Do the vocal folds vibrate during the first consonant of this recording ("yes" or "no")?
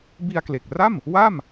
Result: yes